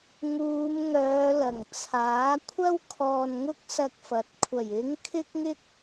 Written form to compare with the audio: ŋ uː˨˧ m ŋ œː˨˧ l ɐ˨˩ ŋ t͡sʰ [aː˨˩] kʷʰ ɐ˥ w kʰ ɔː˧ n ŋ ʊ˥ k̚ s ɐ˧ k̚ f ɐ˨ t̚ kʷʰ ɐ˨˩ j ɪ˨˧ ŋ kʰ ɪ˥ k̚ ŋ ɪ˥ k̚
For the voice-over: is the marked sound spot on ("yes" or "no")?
no